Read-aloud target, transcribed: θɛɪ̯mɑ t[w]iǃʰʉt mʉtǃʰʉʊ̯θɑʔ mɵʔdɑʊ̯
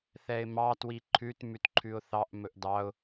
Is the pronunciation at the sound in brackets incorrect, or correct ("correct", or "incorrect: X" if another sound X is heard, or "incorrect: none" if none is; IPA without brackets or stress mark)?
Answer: correct